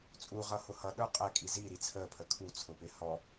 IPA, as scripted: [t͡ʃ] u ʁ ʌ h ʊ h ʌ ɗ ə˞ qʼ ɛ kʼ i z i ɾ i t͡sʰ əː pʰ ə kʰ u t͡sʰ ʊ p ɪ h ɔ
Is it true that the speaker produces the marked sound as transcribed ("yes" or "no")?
no